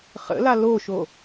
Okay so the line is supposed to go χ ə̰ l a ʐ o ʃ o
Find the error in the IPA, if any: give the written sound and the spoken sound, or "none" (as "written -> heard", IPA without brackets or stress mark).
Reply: ʐ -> l